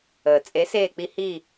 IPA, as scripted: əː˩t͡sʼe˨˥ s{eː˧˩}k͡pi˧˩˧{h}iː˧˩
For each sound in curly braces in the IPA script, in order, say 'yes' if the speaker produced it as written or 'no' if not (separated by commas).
yes, yes